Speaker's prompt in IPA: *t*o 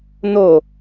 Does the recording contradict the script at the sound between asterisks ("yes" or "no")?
yes